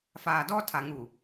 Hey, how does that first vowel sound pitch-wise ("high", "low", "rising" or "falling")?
low